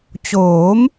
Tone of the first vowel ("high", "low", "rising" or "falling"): rising